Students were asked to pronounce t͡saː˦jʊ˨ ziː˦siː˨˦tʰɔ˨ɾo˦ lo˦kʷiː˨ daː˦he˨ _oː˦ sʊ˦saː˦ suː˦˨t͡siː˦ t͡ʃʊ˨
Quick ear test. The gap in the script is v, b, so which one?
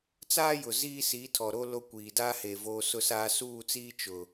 v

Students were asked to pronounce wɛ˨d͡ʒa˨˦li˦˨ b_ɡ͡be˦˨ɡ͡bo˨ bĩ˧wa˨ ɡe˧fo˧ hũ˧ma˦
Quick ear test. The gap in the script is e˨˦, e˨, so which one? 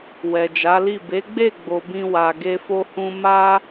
e˨˦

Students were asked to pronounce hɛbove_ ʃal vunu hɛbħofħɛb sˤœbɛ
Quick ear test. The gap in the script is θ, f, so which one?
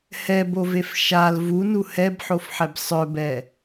f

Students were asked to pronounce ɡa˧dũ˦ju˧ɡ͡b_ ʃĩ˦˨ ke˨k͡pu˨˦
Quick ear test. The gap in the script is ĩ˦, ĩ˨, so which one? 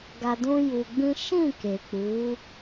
ĩ˦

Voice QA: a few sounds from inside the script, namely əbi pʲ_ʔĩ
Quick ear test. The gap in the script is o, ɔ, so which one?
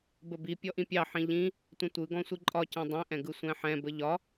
ɔ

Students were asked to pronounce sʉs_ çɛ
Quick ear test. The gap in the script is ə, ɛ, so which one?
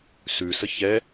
ə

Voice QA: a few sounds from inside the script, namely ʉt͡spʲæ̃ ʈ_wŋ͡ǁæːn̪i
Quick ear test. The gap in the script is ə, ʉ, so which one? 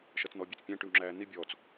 ʉ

